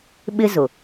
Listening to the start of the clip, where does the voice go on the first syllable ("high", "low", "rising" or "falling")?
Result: high